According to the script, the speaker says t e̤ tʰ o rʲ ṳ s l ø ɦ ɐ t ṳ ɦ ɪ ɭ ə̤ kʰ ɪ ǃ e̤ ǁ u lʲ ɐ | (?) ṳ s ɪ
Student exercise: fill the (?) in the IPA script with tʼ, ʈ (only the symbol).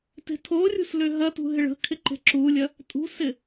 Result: tʼ